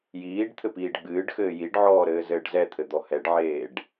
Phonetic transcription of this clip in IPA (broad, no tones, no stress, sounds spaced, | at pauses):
j iː ɖ t̪ʰ ɘ p iː ɖ ɡ͡b ɨː ɖ x ɘː j i ɖ ʕ ɔː ɾ ɘː z ɘː ɖ z ɛ t̪ʰ ɘ d̪ ɔ h ɛ ɖ ʕ eː ɖ